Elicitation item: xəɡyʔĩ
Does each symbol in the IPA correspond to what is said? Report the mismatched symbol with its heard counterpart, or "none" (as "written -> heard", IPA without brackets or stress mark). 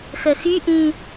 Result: ɡ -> x